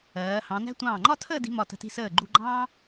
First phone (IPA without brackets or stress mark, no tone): ɜː